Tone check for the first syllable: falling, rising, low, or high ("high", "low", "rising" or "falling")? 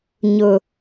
high